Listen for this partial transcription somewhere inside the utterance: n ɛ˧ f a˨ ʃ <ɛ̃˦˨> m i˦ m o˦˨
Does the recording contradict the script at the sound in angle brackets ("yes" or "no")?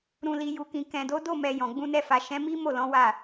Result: yes